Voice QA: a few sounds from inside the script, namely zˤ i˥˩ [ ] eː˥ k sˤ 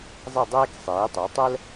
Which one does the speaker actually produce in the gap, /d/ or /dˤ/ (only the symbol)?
dˤ